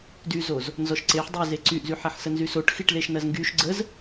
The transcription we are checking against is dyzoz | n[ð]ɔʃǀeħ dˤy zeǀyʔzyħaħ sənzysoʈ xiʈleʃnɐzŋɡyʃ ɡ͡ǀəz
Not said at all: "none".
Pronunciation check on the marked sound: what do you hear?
z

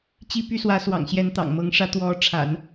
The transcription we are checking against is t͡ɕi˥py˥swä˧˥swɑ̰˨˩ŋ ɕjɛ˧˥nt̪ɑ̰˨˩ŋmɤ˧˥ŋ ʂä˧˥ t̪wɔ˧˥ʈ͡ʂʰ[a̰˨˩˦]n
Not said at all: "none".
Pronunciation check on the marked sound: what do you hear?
a̰˨˩˦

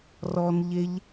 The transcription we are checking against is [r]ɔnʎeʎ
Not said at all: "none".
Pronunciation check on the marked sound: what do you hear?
r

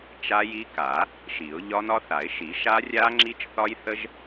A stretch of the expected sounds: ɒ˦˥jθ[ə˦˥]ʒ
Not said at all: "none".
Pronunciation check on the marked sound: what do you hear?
ə˦˥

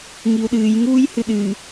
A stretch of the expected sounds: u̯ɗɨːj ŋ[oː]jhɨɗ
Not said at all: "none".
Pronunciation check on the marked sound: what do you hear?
uː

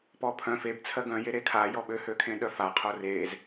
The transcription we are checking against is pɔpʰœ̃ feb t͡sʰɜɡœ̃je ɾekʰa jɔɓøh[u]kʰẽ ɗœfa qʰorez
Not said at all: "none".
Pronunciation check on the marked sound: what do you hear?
ø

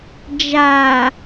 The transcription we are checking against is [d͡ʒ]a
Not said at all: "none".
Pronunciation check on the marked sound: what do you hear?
d͡ʒ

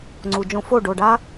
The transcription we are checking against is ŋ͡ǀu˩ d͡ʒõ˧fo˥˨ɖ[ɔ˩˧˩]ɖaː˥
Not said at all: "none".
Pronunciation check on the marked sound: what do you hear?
o˩˧˩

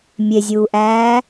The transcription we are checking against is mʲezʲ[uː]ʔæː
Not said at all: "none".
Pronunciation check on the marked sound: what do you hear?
uː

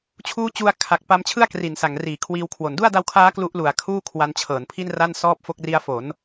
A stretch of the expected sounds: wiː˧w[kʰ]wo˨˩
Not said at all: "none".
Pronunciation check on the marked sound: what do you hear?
kʰ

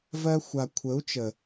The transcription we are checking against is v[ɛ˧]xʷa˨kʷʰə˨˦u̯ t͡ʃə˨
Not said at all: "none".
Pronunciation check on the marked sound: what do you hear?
ɜ˧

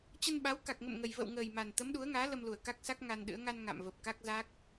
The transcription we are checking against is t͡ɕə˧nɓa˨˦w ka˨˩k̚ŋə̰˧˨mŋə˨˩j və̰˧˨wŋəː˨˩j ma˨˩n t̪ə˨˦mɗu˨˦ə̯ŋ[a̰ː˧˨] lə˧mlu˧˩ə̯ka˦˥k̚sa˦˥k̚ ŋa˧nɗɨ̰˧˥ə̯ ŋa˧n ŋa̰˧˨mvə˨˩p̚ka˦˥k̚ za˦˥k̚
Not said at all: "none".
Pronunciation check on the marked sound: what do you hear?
aː˨˦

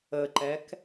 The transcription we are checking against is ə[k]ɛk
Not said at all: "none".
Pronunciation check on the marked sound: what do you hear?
ǃ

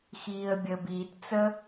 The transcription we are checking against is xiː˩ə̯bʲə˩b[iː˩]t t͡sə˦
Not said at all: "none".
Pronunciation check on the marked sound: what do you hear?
iː˩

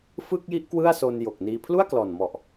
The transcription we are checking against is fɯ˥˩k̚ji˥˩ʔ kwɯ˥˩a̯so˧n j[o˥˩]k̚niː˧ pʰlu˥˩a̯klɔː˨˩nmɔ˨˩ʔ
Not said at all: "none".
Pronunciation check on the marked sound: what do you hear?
o˨˩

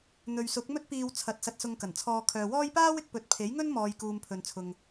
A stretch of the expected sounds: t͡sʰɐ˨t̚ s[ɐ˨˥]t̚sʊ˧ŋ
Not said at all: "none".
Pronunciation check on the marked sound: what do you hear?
ɐ˧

